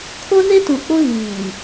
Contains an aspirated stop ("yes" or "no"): yes